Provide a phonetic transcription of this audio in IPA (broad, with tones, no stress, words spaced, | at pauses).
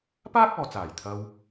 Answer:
paː˥k̚ɔː˨t͡saː˨˩j t̪ʰɐ˧w